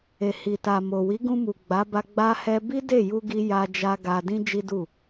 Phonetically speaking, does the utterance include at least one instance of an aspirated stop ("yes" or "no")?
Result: no